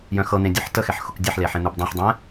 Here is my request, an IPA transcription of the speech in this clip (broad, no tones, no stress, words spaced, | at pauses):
jœ̃xɤn̪ẽ dʲɤħtəxɛħ xʊkdʲɛħle ħẽn̪ubdˤɛ̃ħdˤɛ̃